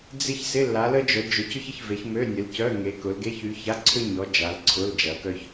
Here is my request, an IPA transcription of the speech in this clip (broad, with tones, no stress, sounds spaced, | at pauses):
d͡z ɪ˥ ç s ɪ˧˥˧ lː a˨˦ l ə˥ d͡ʒ œ˨˦ d͡ʒ ʊ˨˦ c ʏ˥ ç ə˨˦ ç v e˨˦ ç m ø˧˥˧ nʲ ə˨˦ l c œ˧˥˧ ŋ e˨˦ k ʊ˨˦ l ɡ e˧˥˧ ç y˨˦ ç a˧˥˧ ǀʰ ø˥ ɲ ɔ˨˦ d͡ʒ a˨˦ l ǀʰ ʊ˧˥˧ l d͡ʒ ɐ˨˦ k œ˥ ç